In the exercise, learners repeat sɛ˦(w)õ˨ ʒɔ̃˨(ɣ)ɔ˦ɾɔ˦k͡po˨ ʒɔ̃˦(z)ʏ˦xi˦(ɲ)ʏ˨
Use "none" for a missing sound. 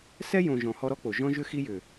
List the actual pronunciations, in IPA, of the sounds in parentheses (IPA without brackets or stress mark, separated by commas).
j, h, ʒ, j